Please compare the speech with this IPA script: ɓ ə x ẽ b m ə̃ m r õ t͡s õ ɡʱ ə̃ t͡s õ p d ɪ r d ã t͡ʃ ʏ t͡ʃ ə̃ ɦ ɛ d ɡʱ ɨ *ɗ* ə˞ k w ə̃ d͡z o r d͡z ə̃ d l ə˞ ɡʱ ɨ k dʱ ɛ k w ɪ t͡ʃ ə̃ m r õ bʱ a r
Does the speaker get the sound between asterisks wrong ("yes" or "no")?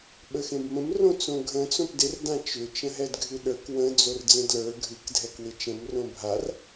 no